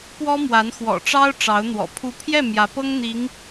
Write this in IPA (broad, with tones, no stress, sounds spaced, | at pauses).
p w ɔ˥ m w a˧˥ n x w ɔ̰˨˩ ʈ͡ʂ ɑ˥ ʊ̯ ʈ͡ʂ ɑ˧˥ ʊ̯ n̪ w ɔ̰˨˩ pʰ u˧˥ pʰ j ɛ˥˩ m j ä˧˥ p ɤ˥ ŋ n̪ i˧˥ ŋ